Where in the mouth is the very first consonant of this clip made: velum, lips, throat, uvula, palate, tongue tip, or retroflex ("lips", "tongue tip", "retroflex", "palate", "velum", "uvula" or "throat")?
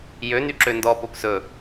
palate